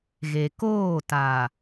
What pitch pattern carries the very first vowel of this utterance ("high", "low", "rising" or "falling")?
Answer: low